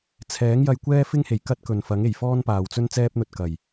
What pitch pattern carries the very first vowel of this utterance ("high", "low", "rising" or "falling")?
rising